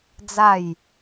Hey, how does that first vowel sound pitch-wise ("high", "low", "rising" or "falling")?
falling